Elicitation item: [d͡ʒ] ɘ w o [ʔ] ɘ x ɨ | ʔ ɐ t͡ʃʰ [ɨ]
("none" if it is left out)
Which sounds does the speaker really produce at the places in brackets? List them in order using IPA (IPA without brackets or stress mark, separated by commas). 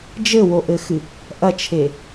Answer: d͡ʒ, ʔ, e